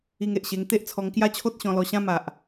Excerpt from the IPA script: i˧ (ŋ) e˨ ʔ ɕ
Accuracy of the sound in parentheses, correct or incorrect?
correct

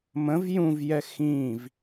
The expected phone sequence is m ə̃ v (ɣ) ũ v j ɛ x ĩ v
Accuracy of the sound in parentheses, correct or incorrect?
incorrect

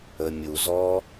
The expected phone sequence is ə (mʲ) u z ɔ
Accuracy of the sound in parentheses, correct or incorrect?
correct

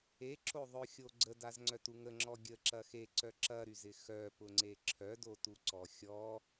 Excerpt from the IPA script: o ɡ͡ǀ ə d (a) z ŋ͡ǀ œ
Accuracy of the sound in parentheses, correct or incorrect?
correct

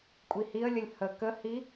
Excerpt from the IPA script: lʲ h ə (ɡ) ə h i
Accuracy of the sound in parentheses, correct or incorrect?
incorrect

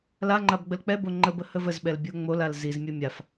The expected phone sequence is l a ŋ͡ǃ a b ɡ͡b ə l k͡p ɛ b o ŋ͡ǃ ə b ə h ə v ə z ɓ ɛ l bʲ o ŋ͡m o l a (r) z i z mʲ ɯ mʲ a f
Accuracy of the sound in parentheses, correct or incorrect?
incorrect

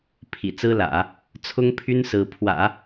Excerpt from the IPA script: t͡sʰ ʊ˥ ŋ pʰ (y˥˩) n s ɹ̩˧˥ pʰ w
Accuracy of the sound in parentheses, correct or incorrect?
incorrect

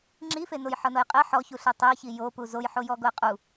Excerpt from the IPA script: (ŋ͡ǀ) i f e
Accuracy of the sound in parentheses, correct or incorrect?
incorrect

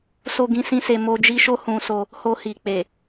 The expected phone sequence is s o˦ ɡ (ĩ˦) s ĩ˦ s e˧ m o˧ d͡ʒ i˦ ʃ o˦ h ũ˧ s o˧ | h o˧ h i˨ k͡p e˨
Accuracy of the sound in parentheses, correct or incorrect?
correct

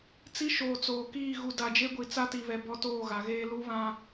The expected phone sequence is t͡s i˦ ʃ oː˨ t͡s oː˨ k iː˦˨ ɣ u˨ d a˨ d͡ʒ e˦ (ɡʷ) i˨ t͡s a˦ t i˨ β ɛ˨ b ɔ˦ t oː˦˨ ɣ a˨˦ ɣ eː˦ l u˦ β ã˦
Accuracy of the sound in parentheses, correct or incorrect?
correct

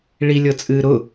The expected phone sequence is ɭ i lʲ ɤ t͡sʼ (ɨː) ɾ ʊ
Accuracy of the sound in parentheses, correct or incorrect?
correct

